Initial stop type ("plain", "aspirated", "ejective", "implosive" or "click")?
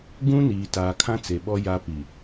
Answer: plain